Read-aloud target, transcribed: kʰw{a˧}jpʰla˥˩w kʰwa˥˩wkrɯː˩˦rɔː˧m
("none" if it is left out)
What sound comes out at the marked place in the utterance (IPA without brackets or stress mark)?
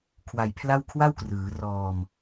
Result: a˧